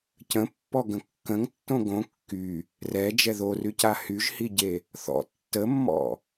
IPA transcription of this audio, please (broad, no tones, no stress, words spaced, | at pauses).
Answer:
cə̃pːɔɡə̃ kːə̃ŋtːõ ɡõ kːy | rɛd͡ʒɛ ðoryca hyʒhiɟe | θɔ̰ tːəmːɔ̰